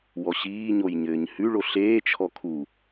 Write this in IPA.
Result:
w ɔ ɕ iː ɲ o j ɲ ɘː ɲ h ʉ ɭ o ɬ eː t͡ʃʰ ɔ kʰ u

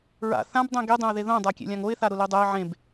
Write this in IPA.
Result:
ɹ a̰ θ ã b dˤ ẽ ɡ i dˤ ẽ ʊ̯ ð e ð õ dˤ a kʲ ḛ lʲ ã ŋ o ɪ̯ θ a ɾ ʊ l i dˤ ɛ ɪ̯ ʕ ẽ b

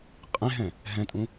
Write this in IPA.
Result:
qʼ ẽ ɦ ɛ̃ | ɦ ɛ̃ tʼ ũ

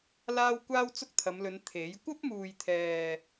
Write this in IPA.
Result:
l aː˧ w kʷ aː˥ w t͡s ʊ˥ k̚ t̪ʰ ɐ˨˧ m l ɵ˨˧ n t̪ʰ e˨˥ j kʷ ɐ˥ p̚ m uː˨ j t̪ʰ ɛː˨

